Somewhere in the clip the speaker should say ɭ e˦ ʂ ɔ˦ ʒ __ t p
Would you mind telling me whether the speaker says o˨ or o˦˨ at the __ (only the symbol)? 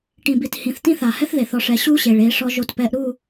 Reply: o˦˨